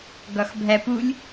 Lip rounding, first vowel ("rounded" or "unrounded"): rounded